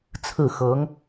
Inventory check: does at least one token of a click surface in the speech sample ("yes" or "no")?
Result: no